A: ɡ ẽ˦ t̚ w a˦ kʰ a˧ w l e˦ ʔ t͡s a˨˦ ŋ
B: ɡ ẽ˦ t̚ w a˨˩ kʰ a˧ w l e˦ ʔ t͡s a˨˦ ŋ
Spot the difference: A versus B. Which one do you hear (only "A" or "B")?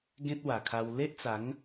B